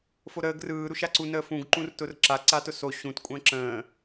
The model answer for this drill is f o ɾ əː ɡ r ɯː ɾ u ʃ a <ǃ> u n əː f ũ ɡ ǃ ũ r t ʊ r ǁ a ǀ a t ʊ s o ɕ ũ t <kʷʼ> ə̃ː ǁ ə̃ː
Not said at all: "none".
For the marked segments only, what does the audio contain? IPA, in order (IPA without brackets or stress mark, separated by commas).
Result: ǀ, kʷʼ